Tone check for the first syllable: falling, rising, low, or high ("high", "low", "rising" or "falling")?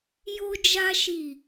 high